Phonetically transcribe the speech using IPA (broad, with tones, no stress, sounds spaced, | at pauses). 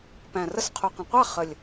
p æ̃˨˩ r ə˥˨ s qʰ u˨˩ q ə̃˨˩ qʷ a˥˨ χ ə˨˩ lʲ